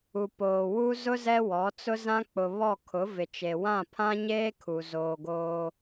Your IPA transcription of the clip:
u˨ p oː˨ w u˦ z ʊ˦ z ɛ˦ w ɔ˨˦ t͡s ʊ˦ z ã˦ k͡p ʊ˨ β ɔ˦˨ kʰ ʊ˨˦ v ɪ˨ t͡ʃ e˨ w ã˦˨ pʰ ã˦ ɲ eː˦ kʰ u˨ z oː˨ ɡ oː˦

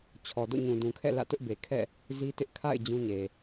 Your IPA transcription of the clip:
t͡ɕʰ ɔ˨ d o̰˦˨ ɲ ũ˨ d ũ˨ kʰ ɛ̰˦˨ l ä̰˦˨ t ʊ˦ ʔ b e˨ kʰ ɛ̰˦˨ | z i˦ t ɪ˦ ʔ kʰ a̰˦˨ ɪ̯ d͡ʑ ũ˦ ɲ e˨

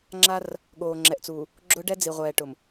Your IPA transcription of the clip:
ŋ͡ǁ a˦ r | ɠ oː˨ ŋ͡ǁ ɛ˨ ʔ t͡s uː˨ | ɡ͡ǁ ʊ˦ ɖ ɛ˦ d͡z i˨ ʁʷ ɛː˨ ʈ ʊ˨ m

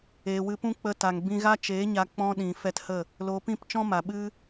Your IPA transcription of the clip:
eː˨ w ɨ˧ p ũ˦ k͡p ə˧ t a˨ ŋ b ĩ˧ ɣ a˦ t͡ʃ eː˨˦ ɲ a˧ k͡p ɔ̃˦ ɗ ĩ˨ f ɛ˧ t h ə˦˨ | l oː˨ p ĩ˦˨ p t͡ʃ ɔ̃˦ m a˨ ɓ ɨ˦

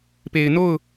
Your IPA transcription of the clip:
p e˨ ɪ̯ n o˦˨ ʊ̯

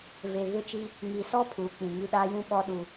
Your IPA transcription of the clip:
v e˨ ɣ ɪ˦˨ t͡ʃ i˦ | ŋ i˨ s ɔ˦ pʰ uː˨ k͡p ĩ˨ ŋ i˦ ɗ a˦ j ũ˦ ɓ ɔ˦ ɗ u˦

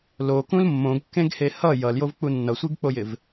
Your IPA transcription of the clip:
l o k ũ l mː õ ɡ kː ẽ ɡ h e h ʌ j ʌ l j o v k͡p u nː ʌ sʷ i ɡ k͡p o j ɪ v

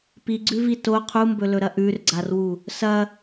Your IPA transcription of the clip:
p i ɡ͡ǀ ʉ v i t o qʰ u m b ɵ l ɵ ɾ ɐ ʔ ʉ r ɡ͡ǀ a r w u | s ɐ

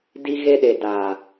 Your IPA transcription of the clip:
d i˦ ɣ e˦ ɗ e˨ d aː˨

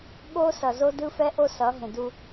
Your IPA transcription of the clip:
ɠ o˦ s ʌ˨ z o˦ d ɯ˦ f ɛ˦ ʔ o˦ s ʌ˨˦ ɦ ẽ˨ d u˦

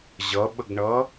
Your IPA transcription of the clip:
ʑ ʌ ɓ ə ɡ ɳ ʌ

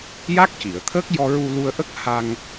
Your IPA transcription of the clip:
j a˦˥ k̚ c i˨˩˨ ə̯ t̪ʰ əː˦˥ k̚ j ɔ˧ ɹ u˧ l u˧ ə̯ ʔ ə˦˥ k̚ h a˧ ŋ

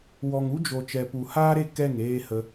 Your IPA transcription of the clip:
w ɔ˨ ŋ u˦ d͡ʒ o˨ t͡ʃ ɛ˨ p u˨ h aː˦ ɾ e˦˨ k ɛ˦˨ ŋ eː˦ h ə˦

